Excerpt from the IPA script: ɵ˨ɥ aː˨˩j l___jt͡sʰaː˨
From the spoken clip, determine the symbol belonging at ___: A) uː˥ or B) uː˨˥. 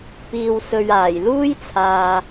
A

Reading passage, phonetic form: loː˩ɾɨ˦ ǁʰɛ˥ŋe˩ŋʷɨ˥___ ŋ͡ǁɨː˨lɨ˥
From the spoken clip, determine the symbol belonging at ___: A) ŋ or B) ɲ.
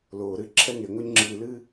B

